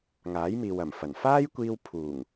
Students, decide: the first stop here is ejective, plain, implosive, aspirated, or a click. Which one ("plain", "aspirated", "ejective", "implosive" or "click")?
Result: plain